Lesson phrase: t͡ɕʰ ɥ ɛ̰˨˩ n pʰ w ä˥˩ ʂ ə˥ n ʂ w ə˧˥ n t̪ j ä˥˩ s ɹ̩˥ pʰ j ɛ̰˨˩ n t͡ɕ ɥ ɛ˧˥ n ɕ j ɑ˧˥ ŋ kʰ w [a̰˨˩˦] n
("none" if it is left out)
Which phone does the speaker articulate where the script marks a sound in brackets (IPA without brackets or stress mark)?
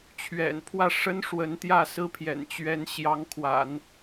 a̰˨˩˦